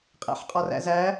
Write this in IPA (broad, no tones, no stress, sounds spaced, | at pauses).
qʼ æ̰ ħ qʼ ɒ r æ̰ z æ